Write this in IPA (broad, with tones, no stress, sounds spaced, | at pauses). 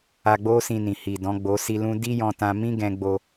a˧ ɡ͡b o˦ s ĩ˧ n ĩ˨ h i˨ d ɔ̃˨˦ ɡ͡b o˦ s i˦ l ũ˦ d i˦ j ɔ̃˧ t ã˧ m ĩ˦ ɡ ɛ̃˧ ɡ͡b o˧